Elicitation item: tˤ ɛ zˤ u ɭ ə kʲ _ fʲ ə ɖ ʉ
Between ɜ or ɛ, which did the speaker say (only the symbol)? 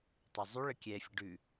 ɛ